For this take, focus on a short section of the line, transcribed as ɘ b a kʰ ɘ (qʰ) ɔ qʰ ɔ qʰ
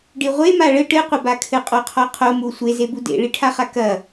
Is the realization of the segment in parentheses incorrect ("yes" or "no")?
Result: yes